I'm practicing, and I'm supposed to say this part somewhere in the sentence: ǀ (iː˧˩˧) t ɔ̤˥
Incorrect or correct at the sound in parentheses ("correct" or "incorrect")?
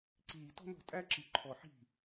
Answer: incorrect